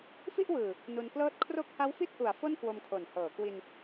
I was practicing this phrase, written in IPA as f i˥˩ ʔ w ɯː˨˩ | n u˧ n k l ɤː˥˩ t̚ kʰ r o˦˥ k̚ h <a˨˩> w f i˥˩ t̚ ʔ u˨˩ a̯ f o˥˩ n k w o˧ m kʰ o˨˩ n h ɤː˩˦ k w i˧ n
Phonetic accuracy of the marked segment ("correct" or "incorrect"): incorrect